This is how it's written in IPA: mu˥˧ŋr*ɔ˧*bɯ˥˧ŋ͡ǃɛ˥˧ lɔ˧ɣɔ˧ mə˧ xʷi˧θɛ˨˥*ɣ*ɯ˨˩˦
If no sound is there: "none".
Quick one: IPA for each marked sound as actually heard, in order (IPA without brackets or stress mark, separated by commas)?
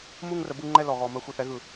ə˧, ɣ